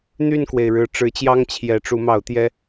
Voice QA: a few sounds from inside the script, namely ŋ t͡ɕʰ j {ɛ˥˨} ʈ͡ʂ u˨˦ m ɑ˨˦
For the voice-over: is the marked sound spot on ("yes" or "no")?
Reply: no